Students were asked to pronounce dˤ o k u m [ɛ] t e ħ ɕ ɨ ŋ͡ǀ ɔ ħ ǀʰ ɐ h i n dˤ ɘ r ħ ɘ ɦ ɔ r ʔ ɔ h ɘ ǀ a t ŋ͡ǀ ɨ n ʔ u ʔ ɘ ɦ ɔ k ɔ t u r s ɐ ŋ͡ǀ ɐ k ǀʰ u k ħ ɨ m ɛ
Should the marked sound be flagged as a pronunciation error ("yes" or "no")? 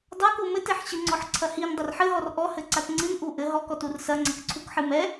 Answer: yes